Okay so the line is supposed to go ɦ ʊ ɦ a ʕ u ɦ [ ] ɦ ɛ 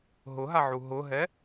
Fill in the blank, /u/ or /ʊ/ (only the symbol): ʊ